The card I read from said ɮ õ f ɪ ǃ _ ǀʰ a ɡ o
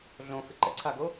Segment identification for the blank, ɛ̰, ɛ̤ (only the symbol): ɛ̰